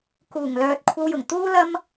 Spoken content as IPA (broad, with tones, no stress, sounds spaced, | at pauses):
k uː˨˩ ŋ l œː˨ t̚ kʷʰ ɐ˧ w j ʊ˨˩ ŋ t̪ uː˥ l ɐ˥ m